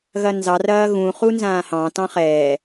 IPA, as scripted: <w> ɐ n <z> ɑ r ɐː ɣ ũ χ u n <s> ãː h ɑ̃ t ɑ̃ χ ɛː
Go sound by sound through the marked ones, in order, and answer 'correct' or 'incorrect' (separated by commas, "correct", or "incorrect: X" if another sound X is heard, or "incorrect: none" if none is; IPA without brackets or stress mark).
incorrect: ɣ, correct, incorrect: z